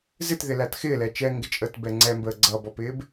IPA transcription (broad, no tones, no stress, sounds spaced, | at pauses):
z ɪ t ð ɪ l æ t x ɪː l ɛ t͡ʃ ɛ ŋ ɡ ɪ t͡ʃʼ əː t b ɛ ŋ͡ǀ ɛ m b əː ɡ͡ǀ ʌ b ɔ p ɪː b